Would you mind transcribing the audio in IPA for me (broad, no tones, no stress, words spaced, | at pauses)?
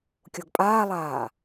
kʲoɡpʼaːlˠaː